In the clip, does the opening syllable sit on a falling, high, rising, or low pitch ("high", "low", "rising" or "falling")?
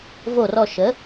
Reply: falling